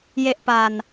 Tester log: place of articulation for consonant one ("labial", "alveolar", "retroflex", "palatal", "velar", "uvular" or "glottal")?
palatal